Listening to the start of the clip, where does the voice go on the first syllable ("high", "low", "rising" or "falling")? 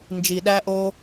low